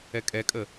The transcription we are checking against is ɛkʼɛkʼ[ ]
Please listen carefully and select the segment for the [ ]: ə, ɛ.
ə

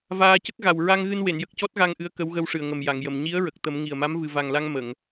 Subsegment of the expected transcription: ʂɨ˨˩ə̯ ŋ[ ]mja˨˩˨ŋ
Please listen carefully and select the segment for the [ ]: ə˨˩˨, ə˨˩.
ə˨˩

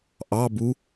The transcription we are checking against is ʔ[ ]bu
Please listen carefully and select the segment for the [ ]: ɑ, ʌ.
ɑ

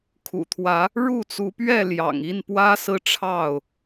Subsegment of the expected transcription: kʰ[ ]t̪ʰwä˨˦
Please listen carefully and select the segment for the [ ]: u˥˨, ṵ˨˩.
ṵ˨˩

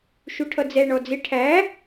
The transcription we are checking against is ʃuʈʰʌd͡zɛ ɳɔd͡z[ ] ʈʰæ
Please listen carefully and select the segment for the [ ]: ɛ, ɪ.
ɪ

